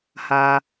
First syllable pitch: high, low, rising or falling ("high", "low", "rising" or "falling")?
low